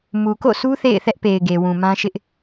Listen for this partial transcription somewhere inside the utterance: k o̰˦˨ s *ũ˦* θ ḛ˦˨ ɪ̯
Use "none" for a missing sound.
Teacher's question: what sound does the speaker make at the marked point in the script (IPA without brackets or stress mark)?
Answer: u˦